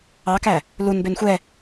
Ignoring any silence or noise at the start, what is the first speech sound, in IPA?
ɑ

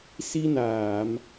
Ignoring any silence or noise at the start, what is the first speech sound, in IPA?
s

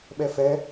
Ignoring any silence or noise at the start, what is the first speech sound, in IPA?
ɓ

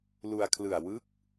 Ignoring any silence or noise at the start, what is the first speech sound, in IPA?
l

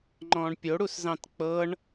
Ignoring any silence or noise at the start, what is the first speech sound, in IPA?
ŋ͡ǃ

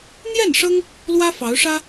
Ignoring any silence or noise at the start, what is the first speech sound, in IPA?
n̪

